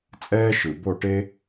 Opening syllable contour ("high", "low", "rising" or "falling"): high